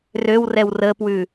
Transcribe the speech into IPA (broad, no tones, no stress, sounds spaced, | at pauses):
r ø w r ɛ w r ə p w ʉ